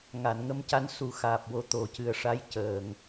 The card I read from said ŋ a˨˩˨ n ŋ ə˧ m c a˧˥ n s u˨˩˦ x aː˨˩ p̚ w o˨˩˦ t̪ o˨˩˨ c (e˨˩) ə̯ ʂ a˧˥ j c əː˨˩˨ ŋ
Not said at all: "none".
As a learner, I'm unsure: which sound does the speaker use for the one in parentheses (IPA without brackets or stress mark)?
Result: ɨ˨˩